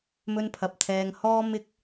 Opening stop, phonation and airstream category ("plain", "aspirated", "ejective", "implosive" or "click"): aspirated